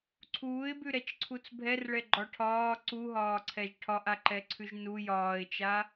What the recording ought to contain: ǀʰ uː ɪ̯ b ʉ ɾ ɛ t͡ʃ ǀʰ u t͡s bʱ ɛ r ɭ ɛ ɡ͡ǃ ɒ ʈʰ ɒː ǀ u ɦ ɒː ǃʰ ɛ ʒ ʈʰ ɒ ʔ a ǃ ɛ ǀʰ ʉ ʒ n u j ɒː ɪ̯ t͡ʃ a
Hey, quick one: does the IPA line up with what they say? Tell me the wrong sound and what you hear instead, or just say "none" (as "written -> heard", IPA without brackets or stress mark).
ǃʰ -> ǀʰ